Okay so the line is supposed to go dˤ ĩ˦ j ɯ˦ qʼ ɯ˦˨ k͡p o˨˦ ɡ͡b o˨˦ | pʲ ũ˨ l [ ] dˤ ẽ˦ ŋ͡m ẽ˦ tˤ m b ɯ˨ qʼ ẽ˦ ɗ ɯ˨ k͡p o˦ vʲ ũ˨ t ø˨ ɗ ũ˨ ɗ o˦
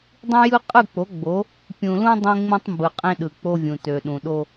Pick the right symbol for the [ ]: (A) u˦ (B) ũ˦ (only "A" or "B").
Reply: B